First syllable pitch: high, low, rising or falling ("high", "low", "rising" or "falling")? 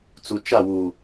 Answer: low